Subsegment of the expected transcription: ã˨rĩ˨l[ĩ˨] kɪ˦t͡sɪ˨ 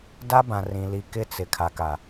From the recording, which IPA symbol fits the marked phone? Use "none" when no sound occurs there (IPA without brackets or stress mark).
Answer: i˨